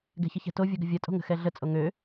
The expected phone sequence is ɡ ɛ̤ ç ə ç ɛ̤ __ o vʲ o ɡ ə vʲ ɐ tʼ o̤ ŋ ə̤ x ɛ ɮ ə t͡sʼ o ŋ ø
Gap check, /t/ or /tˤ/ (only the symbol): t